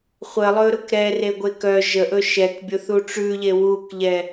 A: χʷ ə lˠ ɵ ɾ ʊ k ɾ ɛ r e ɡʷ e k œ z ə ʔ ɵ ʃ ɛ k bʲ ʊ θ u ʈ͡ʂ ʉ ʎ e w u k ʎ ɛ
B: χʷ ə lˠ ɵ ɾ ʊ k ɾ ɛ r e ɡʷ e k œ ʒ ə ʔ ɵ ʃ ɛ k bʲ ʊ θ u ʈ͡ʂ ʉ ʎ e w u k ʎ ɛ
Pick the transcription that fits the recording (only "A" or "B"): B